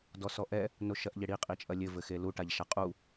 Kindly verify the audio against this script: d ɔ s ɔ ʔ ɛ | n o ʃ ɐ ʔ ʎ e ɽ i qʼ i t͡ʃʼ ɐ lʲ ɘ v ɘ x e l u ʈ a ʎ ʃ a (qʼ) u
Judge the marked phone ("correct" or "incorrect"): correct